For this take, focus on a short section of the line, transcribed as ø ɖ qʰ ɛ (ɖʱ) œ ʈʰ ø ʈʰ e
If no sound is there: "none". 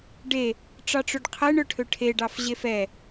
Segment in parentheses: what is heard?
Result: ɳ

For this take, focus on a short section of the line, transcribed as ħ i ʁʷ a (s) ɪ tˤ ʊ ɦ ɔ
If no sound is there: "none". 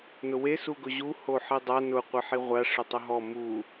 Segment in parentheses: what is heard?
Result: ʂ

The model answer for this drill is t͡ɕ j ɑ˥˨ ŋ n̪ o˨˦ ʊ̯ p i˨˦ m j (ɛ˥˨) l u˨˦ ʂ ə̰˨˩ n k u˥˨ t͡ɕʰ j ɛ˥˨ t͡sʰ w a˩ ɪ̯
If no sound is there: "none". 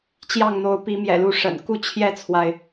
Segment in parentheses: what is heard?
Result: ɛ̰˨˩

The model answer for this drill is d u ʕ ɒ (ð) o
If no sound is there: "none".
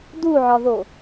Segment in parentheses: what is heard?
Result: ð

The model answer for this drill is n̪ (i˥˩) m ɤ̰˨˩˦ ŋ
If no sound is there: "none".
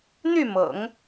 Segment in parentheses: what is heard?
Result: y˥˩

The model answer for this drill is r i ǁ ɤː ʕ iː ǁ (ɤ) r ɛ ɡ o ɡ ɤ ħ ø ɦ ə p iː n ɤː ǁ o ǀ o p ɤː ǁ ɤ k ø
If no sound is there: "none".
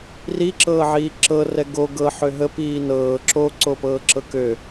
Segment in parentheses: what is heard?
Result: ɤ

